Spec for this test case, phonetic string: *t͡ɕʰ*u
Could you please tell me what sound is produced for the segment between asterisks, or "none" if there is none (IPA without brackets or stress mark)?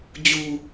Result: d͡ʑ